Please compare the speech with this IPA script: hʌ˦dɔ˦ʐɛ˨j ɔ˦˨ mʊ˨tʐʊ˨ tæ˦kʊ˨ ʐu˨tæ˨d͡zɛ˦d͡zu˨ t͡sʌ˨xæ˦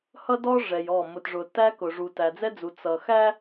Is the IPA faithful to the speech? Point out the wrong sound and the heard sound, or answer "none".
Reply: none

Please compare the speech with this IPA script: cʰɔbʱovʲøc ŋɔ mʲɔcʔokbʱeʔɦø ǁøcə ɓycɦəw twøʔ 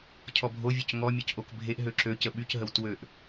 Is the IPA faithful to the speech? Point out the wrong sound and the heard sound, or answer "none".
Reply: none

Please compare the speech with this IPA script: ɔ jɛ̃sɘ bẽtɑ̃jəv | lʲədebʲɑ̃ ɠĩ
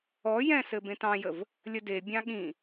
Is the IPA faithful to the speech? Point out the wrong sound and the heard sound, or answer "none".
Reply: none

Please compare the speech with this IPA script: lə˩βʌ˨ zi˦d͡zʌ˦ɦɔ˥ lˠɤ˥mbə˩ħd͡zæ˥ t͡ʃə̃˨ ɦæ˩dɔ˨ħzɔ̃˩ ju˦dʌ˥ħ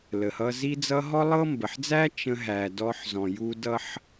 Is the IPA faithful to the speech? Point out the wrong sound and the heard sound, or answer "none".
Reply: β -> h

